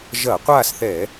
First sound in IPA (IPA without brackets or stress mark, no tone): ʒ